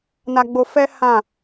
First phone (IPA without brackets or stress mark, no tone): n